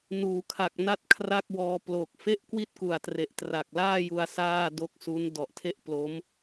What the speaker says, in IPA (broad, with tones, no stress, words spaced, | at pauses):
nuː˩˦kʰa˨˩k̚ na˥˩t̚kʰra˥˩k̚wɔː˧ plo˨˩k̚ fe˥˩ʔkwi˥˩t̚ku˨˩a̯tre˨˩ʔ tra˨˩k̚laː˥˩ju˧a̯ saː˥˩do˦˥k̚su˦˥n dɔ˨˩ʔtʰe˥˩ʔ plo˦˥m